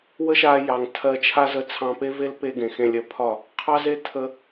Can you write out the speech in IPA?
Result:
wə˦ʃa˧jɑ˨ŋ tʰɜ˧t͡ʃʰa˦ zə˧t͡sʰɑ̃˧pe˦ve˦l pe˦ ɡẽ˨xẽ˧lʲɜ˧pʰɒ˦˨ | qʰɑ˦ze˦ tʰə˧

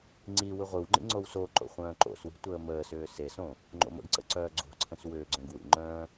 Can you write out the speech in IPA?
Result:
ŋ͡ǀiwɯ ʁʷɯwŋ͡ǃḭ ŋ͡ǀowsoǃo̰ χʷœ̃ːǃo̰swi̤ tʷəːməːsʏː sesõ | ŋ͡ǃo̰mə̰ɡǀə̰ ǀœːɡ͡ǀo̤ǀʰə̃s wʏːɡ͡ǀœ̃ɡ wḭŋ͡ǃœ̃ː

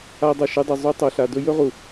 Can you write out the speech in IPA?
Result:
a˧dˤɐ˨ʃɨ˧dˤɵ˨ zˤu˧ tˤo˨ɬa˨dɵ˦ jɵ˦ʁu˨

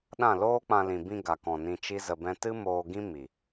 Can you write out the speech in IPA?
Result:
ɗã˦˨loː˦k͡pã˧ lĩ˨bĩ˧ ɡa˨kɔ̃˨ nĩ˧t͡ʃi˦zə˧bɛ̃˦ tɨ˦ moː˧ɡĩ˦ mi˨

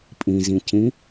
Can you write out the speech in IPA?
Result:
pʼĩzĩcĩ

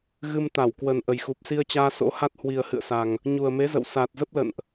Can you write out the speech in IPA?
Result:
ɣɨ˧mt̪a˧˩wkwə˨˩n ʔə˨˩jxu˨˩p̚si˧ə̯t͡ɕaː˧ so̰˧˥ha˦˥t̚ hwi˨˩ə̯hɨ̰˧˨ə̯sa˨˩ŋ | ɲu˨˩ə̯me˨˦zə̰˧˨w saː˨˩t̚zə˦˥p̚lə̰˧˨nʔ

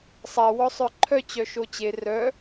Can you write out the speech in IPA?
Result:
sˤa wɔsˤœǃʰœ t͡ɕœʃot͡ɕe rœ

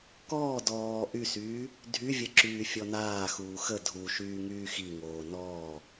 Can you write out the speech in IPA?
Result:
kɔː dɔː ʔysyː | dʱyvʲə ǁyːfʲɔnaːxuː xə dʱu ʃyːŋyːxiŋoː nɔː

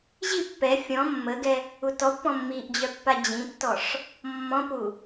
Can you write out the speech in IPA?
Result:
ʑi pːɛ fʲɔ̃ mːəɡɛ | utɔpːɔ̃ mːiʔd͡ʑœ pːad͡ʑĩtːɔʂ | mːɔ̃pu

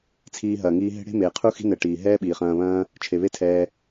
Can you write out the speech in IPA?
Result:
t͡sʰiː˧ɦɐː˨ŋiː˧ɦe̤˦ ɽe̤˦meː˨qʰu˦xi̤˦ nɛ˧ ʈiː˨ ɦɛː˦ɓiː˨χɐ̃ː˧βɐ̃ː˦ | t͡ʃʰe˨βe˦tʰɛː˧

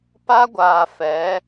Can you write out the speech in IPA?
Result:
pa˦ɡʷaː˨fɛ˨˦

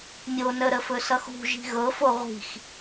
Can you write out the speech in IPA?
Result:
mʲonəɾə fɵsʌxṳ ʒi̤ɣɤfo ʁʷi̤x

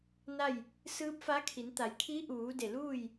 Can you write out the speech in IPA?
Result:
na˥˨j | sɯː˧˥p̚fa˧˥kʰi˩˧n t̪a˩˧jkʰi˧˥ʔuː˩˧ de˧˩luː˥˨j

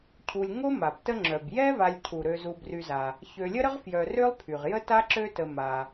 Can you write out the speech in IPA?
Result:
cʰu˨lʲŋo˥ma˩btə˦ ŋ͡ǁœ˩bjɛ˥va˨lʲcʰu˩ ɾø˨zu˨bry˨za˩ | çø˨lʲə˥ɾə˥ʁ fjœ˨rø˥lˠpʰy˩ʁ jə˥ta˥ ǁø˦tə˨ ma˩

